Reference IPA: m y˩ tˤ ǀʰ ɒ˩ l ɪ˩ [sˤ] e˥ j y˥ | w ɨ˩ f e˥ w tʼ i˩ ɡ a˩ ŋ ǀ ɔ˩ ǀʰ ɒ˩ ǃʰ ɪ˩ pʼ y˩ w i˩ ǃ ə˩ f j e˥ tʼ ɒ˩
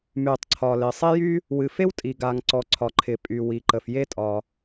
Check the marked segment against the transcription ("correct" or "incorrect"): correct